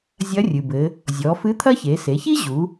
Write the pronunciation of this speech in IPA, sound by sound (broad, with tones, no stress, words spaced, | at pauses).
zʲɐ˧˥rʲɨ˩bɘ˩˧ | zʲɔ˩˧fɨ˧˥t̪ʰɐ˥çe˩˧ se˩˧çi˥ ʑu˩˧